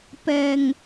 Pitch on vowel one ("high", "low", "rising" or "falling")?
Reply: low